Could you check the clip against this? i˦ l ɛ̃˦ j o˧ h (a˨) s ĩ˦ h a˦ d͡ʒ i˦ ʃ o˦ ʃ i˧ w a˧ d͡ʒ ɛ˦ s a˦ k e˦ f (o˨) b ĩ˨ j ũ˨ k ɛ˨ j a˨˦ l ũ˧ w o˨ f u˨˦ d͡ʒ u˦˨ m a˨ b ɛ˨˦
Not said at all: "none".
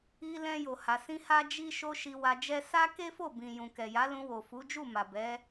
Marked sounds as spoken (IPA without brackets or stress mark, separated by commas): a˧, o˦˨